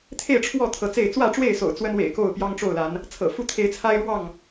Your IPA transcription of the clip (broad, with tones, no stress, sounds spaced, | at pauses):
t̪ʰ e˥˨ ɪ̯ ʈ͡ʂʰ w ɔ˥˨ t̪ʰ ɤ˨˦ t͡s e˥˨ ɪ̯ t͡s w ä˥˨ ʈ͡ʂ w e˥˨ ɪ̯ s o̰˨˩ ʊ̯ t͡s w ə˦ n w ḛ˨˩ ɪ̯ k o˥˨ ʊ̯ p j ɑ˦ ŋ ʈ͡ʂ o˥˨ ʊ̯ l a˨˦ n | t͡sʰ ɤ̰˨˩ f u˦ t̪ʰ e˨˦ ɪ̯ t͡sʰ a˦ ɪ̯ ɻ w ɑ˥˨ ŋ